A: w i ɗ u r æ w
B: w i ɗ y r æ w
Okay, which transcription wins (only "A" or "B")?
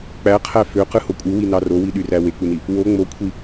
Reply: B